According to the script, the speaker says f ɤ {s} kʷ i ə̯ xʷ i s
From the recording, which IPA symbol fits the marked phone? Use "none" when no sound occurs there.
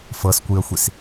s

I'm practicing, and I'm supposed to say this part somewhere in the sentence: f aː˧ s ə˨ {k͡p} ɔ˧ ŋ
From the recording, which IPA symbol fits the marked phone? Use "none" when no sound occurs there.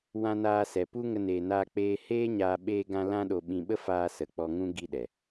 k͡p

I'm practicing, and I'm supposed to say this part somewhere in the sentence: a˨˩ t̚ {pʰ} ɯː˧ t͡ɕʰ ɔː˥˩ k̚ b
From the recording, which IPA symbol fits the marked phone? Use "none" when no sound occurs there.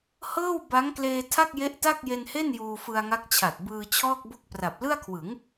b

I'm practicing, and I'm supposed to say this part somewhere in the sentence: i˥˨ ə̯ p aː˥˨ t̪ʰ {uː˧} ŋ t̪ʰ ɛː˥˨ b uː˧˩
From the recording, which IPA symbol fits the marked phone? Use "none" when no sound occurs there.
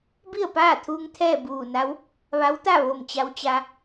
uː˧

